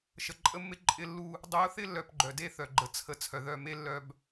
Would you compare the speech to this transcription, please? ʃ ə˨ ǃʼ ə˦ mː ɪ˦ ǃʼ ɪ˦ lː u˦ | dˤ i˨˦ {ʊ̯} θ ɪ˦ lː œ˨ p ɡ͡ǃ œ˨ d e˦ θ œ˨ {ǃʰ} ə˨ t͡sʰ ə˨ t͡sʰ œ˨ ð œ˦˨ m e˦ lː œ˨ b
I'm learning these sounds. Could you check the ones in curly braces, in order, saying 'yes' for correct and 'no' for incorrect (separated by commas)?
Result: yes, no